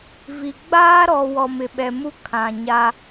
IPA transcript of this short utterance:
vi˨ ɡ͡baː˦ɾɔ˨ wɔ˨mɪ˨ɓɛ˨mu˦ kʰã˨ɲa˦

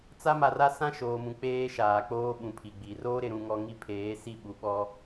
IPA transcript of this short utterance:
t͡sa˦ma˨ra˦ sã˦ʃoː˨mũ˨ k͡peː˦ʃaː˨k͡poː˦ ɓũ˨pʰi˨ɡ͡bi˨ roː˦ɾɪ˨ɾũ˨ŋɔ˨ ŋi˦pʰeː˨˦ si˦˨ɓu˨ɓɔ˦

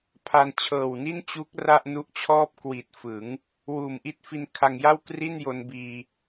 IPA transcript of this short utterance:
pʰa˧n t͡ɕʰɤː˨˩wni˥˩n t͡ɕu˦˥k̚ ra˥˩ʔnu˦˥ʔt͡ɕʰɔː˥˩p̚ kwi˨˩t̚ fɯ˩˦ŋ | wuː˨˩mʔi˦˥t̚fi˧n kʰa˧ŋja˥˩wkri˥˩n jo˧nbiː˧

